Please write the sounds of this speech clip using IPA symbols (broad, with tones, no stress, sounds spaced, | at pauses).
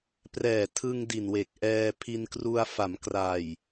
p r ɛː˨˩ tʰ ɯ˧ ŋ d i˨˩ n w e˨˩ k̚ ʔ ɛː˧ pʰ i˧ n k r u˧ a̯ f a˩˦ m k r a˨˩ j